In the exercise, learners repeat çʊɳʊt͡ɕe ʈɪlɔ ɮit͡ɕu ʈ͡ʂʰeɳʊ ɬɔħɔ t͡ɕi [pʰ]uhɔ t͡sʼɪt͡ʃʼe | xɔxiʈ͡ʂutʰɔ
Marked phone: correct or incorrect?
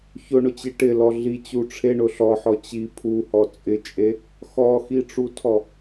correct